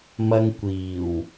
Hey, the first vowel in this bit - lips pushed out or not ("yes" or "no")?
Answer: no